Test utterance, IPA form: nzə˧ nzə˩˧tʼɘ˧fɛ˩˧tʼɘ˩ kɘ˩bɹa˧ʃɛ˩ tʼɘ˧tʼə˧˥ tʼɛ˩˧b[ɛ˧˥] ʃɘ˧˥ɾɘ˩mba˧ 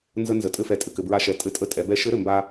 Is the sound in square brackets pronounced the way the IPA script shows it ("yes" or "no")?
yes